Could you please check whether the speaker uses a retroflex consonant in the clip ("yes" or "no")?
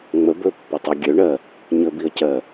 yes